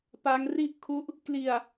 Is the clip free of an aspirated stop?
no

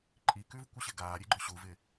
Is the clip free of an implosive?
yes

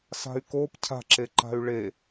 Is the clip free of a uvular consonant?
yes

